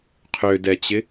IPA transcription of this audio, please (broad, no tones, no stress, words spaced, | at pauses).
qʰødɛt͡ɕɪ